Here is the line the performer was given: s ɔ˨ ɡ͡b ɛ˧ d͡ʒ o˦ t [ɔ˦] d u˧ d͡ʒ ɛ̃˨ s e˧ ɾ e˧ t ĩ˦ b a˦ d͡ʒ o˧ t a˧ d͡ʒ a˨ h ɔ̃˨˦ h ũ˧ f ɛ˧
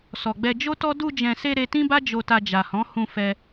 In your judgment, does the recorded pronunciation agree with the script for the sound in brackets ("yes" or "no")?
yes